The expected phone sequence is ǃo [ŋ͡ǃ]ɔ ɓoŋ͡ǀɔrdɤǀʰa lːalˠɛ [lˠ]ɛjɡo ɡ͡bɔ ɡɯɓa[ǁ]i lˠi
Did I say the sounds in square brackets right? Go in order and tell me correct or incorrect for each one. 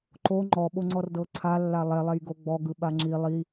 correct, correct, incorrect

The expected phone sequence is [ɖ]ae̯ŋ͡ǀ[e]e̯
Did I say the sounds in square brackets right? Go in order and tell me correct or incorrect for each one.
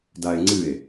incorrect, incorrect

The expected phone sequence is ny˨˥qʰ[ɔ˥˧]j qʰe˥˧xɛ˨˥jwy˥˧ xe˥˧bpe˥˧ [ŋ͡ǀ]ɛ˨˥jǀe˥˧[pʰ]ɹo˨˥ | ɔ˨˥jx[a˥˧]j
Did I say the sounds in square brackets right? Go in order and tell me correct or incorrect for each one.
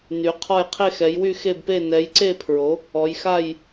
correct, incorrect, correct, correct

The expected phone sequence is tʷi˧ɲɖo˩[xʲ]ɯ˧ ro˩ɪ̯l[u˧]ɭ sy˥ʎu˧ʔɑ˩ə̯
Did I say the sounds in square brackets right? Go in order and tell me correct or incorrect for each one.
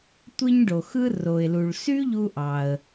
incorrect, incorrect

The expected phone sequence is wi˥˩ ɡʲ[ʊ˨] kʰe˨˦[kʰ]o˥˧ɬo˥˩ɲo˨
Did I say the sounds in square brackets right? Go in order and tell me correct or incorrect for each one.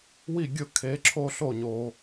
incorrect, incorrect

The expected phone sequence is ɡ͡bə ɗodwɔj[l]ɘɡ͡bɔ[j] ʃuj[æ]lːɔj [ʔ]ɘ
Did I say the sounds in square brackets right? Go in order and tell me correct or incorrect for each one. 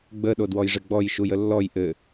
incorrect, correct, incorrect, correct

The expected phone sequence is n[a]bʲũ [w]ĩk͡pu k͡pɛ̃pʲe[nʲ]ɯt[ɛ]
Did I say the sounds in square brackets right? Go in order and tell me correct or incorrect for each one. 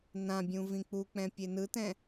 incorrect, incorrect, incorrect, incorrect

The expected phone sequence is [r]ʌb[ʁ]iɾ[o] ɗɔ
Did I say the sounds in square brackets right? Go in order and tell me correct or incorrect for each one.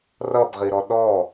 correct, correct, incorrect

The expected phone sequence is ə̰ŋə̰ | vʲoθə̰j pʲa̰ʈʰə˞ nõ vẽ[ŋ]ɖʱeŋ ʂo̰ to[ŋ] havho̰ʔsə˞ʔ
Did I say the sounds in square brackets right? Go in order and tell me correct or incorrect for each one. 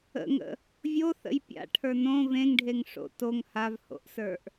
correct, correct

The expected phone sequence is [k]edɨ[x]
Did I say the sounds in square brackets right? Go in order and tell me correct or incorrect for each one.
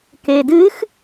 correct, correct

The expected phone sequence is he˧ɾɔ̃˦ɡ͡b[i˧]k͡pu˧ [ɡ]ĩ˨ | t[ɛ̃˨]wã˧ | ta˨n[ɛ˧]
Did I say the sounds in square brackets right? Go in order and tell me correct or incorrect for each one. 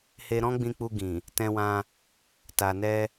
incorrect, correct, incorrect, correct

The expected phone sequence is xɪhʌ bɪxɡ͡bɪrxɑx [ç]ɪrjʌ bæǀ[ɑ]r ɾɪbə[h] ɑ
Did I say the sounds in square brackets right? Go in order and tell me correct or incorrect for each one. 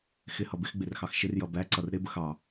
incorrect, incorrect, incorrect

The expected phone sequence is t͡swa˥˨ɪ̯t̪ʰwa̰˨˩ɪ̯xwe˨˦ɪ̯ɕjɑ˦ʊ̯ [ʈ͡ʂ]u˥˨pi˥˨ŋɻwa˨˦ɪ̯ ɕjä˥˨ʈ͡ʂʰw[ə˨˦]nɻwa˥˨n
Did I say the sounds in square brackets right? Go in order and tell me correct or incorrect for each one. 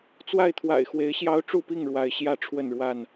correct, incorrect

